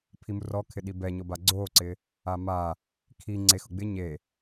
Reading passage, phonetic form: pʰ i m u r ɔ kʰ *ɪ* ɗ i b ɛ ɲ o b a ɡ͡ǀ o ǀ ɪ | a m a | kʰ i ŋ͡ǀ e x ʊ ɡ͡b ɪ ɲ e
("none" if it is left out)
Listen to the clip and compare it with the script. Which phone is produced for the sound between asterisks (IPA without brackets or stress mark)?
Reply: ɪ